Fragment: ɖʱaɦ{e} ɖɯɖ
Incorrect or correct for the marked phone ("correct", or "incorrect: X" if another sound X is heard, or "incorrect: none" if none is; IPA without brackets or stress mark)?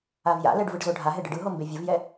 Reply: correct